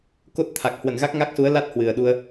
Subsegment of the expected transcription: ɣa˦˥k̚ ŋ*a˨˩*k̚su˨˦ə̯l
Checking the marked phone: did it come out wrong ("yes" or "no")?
yes